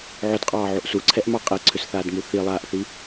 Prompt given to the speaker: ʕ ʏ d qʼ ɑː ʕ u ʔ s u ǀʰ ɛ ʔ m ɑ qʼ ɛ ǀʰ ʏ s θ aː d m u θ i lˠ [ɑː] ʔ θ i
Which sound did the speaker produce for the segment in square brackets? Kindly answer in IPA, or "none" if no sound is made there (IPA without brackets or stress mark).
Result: aː